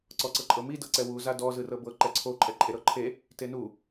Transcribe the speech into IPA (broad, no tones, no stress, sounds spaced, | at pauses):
ǀ ɔ ǀ ɤ ǃʼ ɤ m i d ɤ ǀ ɛ w u z a d ɔ z ɯ r ɤ b ɤ ǃ ɛ ǀʰ o ǃʼ ɛ ǃʼ e ɾ ɤ ǃʰ e | t e n u